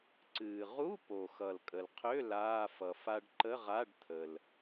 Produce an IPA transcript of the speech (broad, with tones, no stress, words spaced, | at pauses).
ǀɨː˩ ʁu˧˥˧po˩xʌ˩l kʼə˩lqʰø˧˥˧ laː˧˥˧fʌ˩ fa˧ɖǃə˧˥˧ʁa˧˥˧ɖ t̪ʰə˩l